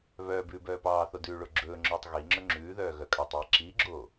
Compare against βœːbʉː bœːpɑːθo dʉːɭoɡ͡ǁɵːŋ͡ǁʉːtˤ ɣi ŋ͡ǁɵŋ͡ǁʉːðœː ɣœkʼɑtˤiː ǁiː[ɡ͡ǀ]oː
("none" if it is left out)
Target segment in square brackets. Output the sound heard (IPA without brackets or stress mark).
ɡ͡ǁ